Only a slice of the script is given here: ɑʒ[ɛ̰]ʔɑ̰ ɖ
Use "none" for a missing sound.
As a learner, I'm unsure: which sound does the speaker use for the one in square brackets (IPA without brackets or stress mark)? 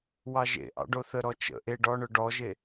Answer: ḛ